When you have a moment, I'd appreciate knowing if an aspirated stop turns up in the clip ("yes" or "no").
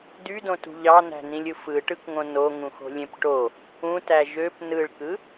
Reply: no